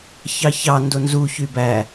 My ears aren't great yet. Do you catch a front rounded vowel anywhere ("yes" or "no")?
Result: yes